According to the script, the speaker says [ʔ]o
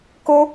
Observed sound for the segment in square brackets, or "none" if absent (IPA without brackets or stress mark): k